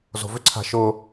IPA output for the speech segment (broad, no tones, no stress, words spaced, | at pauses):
zo̤vʏǀʰa̤ ʃʊ